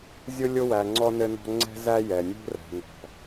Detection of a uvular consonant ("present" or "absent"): absent